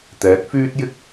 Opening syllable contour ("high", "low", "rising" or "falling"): rising